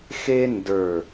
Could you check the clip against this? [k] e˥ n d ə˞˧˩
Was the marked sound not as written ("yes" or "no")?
yes